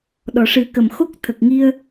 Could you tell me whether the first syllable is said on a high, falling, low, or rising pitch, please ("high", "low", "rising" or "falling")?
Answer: low